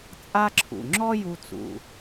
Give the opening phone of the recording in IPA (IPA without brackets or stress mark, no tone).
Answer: t͡sʼ